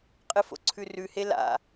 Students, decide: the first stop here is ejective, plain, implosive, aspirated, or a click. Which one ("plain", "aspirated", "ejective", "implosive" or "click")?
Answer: ejective